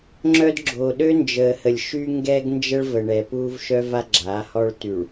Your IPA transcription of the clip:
ŋ͡ǁœ˦d ɡ͡ǁo˨ɗø˦nd͡ʒəː˨hə˨lʲ ʃy˦ŋɡɛ˦ɡnd͡ʒə˦ɭ və˨ɳɛ˨puː˦v ʃœ˦va˦ɡ͡ǁaː˨˦ hɔ˦ɭ ty˨ɭ

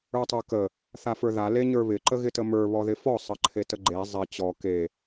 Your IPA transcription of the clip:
ə˞tˤə˞kə | θafə˞ða leɲə˞βɪ ǃəɣɪtəmə˞ βɔðɪfɔ sˤəǃʰetəɡ͡ǃe zˤɪ t͡ɕɔ ke

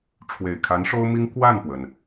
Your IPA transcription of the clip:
ʈ͡ʂʰwe˨˩ɪ̯kʰa˧˥nʂo˥ʊ̯mi˥ŋ kwa˥˩npwə˩n

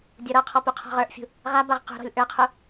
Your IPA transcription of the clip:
dʲɔɾɔqʰɔ puqʰɔ̤ʁə˞ʔfʲṳ | ʁabaʁ qṳɾɔ̤lʲ ʔə˞qʰu

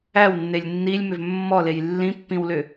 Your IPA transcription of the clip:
æwnːelʲ nːilʲmʏv mːɔlej lːĩpːĩwlʏ

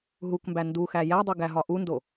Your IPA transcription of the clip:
ɦukmbæ nduxæ jædˤu ɡæɦɒʔundo

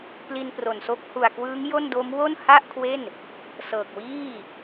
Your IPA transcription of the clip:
pli˧n pro˨˩nso˦˥k̚ hu˨˩a̯kwɯː˦˥ŋ jo˥˩n do˦˥mwo˥˩n ha˥˩ʔkʰwe˥˩n | sɤː˨˩k̚wiː˥˩

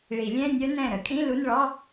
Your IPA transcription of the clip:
ɭi˨˩˦lʲɛ̃˧˥˧nʲœ˦˥ nɛ̃˧˩ ɾə˨˩˦kʼĩ˧˥˧ lu˧˥˧nɭɔ˧˥˧

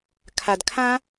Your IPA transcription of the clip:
kʰad kʰã

